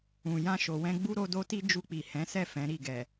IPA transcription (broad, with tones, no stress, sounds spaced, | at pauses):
ũ˨ j ã˧ ʃ o˨ w ɛ̃˧ ɡ͡b u˦ ɾ o˧ d o˦ t i˦ d͡ʒ u˧ k͡p i˨ h ɛ̃˨˦ s ɛ˦˨ f ɛ̃˨˦ ɾ i˦˨ ɡ ɛ˨